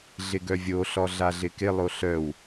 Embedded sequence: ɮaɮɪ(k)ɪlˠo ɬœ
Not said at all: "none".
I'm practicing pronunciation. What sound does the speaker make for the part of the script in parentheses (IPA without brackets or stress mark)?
k